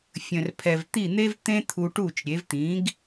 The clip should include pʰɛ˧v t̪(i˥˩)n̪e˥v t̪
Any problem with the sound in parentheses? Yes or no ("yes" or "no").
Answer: no